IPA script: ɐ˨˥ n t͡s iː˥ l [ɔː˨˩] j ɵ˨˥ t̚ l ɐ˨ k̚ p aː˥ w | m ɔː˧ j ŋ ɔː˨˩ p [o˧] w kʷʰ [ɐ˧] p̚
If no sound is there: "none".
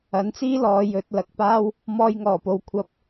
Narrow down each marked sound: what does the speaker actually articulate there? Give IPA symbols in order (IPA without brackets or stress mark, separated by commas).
ɔː˨˧, o˨, ɐ˧